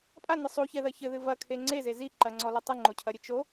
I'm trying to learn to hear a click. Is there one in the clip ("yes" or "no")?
yes